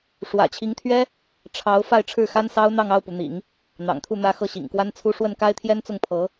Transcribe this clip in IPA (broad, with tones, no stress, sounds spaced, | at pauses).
ʂ w ä̰˨˩ t͡ɕʰ i˧˥ ŋ t̪ʰ ɥ ɛ˥ | ʈ͡ʂʰ ɑ˧˥ ʊ̯ f a˥˧ ɪ̯ ʈ͡ʂʰ ɻ̩˥˩ x a˥ n s ɑ˥ ʊ̯ n̪ ɑ˥˧ ŋ ɑ˥˩ ʊ̯ p u˩ n̪ ḭ˨˩˦ ŋ | n̪ ɑ̰˨˩ ŋ t̪ʰ u˥˩ n̪ ä˥ x ɤ˥˩ ɕ ḭ˨˩ ŋ k w a˥ n t͡sʰ u˥ ʂ w ə˥˩ n k a˥ ɪ̯ t̪ʰ j ɛ˥ n t͡s ʊ˥˩ ŋ pʰ ɤ˧˥